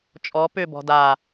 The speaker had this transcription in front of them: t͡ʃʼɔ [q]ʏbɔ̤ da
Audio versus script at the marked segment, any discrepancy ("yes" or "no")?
yes